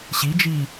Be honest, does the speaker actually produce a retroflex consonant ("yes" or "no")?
no